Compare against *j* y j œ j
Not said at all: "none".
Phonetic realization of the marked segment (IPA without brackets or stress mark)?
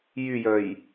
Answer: j